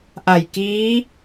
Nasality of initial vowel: oral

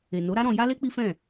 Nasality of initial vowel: oral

